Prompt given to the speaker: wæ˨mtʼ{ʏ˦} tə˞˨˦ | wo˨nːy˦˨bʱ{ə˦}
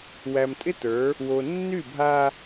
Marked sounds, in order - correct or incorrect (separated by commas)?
incorrect, incorrect